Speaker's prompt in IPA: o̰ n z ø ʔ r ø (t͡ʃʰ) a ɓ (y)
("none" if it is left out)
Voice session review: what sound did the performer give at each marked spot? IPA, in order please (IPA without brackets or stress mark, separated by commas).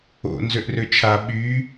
t͡ʃʰ, y